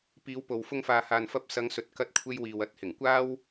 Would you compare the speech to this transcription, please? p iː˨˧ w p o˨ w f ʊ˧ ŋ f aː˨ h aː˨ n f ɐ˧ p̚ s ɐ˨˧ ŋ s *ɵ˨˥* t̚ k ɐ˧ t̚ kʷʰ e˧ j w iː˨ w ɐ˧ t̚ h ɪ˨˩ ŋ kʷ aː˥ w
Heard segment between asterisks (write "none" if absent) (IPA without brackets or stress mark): ɵ˨˥